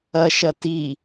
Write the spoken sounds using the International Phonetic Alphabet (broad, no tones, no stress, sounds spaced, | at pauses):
ɐ ʃ ɐ t i